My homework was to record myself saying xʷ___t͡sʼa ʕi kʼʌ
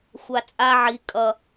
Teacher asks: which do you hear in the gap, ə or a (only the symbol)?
a